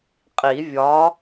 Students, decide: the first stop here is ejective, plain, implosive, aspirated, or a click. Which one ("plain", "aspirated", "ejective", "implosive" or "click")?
ejective